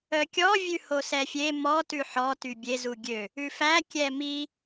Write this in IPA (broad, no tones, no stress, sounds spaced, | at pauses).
œ kʲ ɔ vʲ ʉ h o s ɛ fʲ e m ɔ t ʉ ħ ɔ t y bʲ e z u ɡʲ ø | ʉ f æ kʲ ɛ m i